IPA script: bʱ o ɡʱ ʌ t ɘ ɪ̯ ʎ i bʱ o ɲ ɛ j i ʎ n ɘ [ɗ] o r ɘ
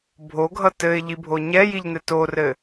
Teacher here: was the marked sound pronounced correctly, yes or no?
no